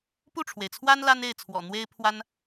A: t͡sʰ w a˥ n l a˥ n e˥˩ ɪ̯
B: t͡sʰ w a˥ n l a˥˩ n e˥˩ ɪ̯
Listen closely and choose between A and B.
A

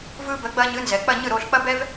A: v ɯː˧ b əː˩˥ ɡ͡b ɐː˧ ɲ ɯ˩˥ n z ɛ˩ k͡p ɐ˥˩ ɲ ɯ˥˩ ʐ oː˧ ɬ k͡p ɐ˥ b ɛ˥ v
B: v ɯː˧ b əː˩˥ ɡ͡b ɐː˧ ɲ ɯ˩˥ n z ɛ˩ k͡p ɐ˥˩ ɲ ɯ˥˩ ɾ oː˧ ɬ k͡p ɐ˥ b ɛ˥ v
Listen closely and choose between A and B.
B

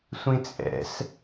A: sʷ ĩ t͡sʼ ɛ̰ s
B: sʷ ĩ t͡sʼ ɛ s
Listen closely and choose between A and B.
A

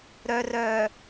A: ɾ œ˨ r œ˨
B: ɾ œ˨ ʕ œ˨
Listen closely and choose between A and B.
A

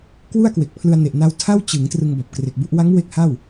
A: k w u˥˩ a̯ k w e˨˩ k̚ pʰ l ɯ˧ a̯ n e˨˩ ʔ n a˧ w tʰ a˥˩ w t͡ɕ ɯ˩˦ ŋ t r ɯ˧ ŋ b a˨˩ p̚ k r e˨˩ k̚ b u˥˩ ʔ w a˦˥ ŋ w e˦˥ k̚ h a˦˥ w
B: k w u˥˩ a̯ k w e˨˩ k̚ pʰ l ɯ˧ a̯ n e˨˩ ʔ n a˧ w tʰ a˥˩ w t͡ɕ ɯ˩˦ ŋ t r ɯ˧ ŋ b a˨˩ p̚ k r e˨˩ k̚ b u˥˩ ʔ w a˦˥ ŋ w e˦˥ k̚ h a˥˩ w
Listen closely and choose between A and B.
B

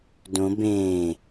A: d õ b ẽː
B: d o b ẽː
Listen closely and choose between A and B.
A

